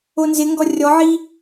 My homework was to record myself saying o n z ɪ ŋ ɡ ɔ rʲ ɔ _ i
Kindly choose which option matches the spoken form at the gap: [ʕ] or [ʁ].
ʕ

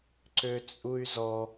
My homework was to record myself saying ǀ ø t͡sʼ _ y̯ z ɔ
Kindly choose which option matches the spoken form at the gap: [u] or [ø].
u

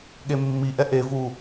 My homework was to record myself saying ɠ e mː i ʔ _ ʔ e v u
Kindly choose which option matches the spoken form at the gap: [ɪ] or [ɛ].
ɛ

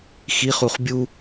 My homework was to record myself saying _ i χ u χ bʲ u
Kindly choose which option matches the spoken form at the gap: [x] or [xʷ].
x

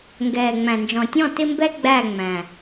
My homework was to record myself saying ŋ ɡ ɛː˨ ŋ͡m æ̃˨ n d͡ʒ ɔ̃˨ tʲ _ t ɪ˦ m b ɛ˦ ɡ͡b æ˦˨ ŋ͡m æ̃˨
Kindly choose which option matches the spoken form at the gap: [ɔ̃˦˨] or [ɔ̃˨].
ɔ̃˦˨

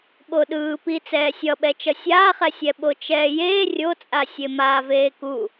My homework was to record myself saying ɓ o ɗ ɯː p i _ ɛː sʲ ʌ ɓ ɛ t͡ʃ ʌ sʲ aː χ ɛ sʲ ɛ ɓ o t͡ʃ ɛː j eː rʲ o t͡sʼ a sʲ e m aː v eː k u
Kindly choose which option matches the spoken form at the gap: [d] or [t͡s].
t͡s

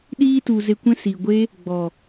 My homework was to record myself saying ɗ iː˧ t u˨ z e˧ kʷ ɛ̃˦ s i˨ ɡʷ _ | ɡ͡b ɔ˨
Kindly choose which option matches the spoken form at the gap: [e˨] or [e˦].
e˦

